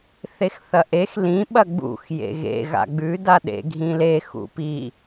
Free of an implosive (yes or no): no